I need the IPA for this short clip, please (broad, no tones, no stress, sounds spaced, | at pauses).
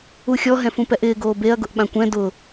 u xʲ ɔ ɦ ɛ̃ f ũ p ɛ ʔ ɪː ɡ oː b e ɐ̯ ɡ ʊ ʔ ɓ ã kʷ ɛ̃ d ʊ